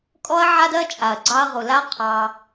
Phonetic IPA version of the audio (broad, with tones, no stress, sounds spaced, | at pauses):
kʼ ɔ˦ ɐ̯ ʕ a˦ d ɜ˦ t͡ʃʼ a˨ ɐ̯ ɡ͡ǀ ɑ˧ ɐ̯ ʁ u˨ l a˦ qʰ ɑ˧